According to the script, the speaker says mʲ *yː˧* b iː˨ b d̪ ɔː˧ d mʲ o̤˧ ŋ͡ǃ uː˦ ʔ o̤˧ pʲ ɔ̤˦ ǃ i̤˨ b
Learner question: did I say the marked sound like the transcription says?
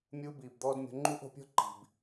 no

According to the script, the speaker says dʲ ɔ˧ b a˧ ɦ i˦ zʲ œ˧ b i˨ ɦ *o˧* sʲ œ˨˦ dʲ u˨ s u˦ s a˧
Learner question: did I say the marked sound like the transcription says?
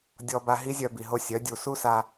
yes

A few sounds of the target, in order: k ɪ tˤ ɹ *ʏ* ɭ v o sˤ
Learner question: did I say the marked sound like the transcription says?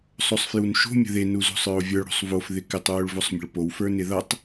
yes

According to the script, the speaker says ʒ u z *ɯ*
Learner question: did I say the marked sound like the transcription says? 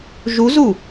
no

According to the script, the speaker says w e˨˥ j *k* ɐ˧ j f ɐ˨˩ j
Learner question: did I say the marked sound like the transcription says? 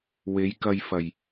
yes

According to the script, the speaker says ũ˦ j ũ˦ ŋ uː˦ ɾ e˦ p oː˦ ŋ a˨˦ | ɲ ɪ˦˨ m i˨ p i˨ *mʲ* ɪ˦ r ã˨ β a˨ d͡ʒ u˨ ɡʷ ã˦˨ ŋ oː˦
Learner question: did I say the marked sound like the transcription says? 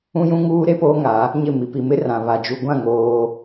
no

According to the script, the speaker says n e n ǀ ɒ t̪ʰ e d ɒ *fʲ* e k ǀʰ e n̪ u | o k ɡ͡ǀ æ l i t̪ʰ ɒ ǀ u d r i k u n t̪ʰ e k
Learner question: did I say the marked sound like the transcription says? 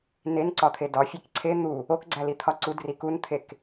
yes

